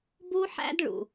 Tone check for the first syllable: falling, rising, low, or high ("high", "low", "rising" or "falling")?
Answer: high